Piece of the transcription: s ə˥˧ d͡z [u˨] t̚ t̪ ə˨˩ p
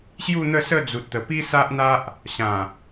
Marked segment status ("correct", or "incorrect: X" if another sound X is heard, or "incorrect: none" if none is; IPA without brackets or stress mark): correct